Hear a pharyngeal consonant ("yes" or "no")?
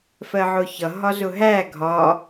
yes